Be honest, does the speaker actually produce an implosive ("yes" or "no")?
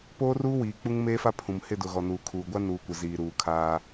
no